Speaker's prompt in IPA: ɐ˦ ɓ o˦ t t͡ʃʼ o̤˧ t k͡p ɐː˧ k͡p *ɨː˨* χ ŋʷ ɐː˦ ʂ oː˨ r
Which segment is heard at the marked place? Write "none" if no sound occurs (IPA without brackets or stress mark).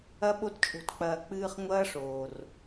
ɨː˧